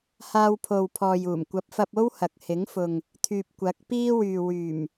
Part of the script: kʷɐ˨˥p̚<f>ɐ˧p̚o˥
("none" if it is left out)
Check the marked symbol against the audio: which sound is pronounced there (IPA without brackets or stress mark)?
f